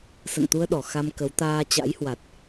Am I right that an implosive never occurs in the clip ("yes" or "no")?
no